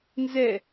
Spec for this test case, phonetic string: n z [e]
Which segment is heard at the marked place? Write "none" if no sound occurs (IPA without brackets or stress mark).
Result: ɛ